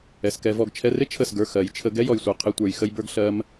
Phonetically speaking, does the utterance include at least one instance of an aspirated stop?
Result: yes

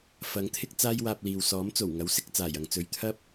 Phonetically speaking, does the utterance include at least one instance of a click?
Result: no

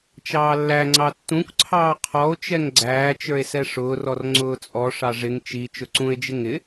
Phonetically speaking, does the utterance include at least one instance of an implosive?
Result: no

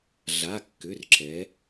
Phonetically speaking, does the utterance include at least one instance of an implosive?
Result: no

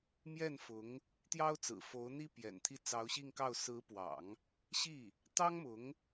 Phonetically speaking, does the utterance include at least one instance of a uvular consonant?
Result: no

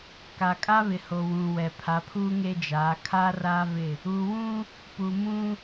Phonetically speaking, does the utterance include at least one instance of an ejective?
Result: yes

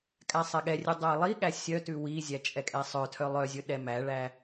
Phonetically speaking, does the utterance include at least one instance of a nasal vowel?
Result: no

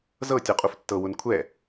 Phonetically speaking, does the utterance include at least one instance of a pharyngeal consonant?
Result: no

